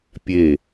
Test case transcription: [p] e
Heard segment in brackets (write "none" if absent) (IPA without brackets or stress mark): pʲ